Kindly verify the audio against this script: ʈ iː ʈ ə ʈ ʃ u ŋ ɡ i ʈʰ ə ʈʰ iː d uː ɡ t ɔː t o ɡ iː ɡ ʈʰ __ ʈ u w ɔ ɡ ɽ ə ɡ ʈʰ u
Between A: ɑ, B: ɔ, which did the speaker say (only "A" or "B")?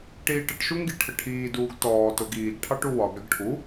A